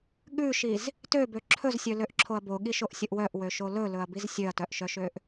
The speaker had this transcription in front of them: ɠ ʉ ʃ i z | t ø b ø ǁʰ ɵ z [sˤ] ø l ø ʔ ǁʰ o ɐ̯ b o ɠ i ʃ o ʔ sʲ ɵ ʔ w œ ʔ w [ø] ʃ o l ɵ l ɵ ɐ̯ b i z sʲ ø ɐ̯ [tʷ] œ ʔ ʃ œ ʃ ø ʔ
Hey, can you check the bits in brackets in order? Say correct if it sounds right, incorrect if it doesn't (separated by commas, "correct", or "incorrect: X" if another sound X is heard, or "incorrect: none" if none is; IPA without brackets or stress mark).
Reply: incorrect: sʲ, correct, incorrect: t